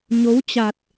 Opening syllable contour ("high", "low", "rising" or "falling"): rising